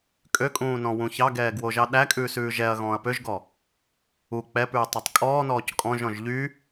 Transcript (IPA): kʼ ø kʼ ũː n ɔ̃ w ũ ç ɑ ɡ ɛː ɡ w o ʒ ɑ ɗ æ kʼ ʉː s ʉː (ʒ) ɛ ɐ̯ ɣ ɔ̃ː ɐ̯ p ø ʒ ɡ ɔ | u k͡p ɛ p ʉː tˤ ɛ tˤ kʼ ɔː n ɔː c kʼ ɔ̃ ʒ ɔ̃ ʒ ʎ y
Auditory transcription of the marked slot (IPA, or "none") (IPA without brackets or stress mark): ʒ